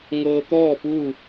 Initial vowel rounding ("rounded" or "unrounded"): unrounded